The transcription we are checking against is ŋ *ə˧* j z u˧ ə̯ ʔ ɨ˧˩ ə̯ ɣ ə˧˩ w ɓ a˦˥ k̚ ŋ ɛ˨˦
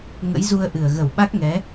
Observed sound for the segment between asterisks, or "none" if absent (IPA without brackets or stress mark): ə̰˧˥